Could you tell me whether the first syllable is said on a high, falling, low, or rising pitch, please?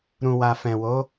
low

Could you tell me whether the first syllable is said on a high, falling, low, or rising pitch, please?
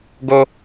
high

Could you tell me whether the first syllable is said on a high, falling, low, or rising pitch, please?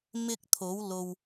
high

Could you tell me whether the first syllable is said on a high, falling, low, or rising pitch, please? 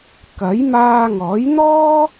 rising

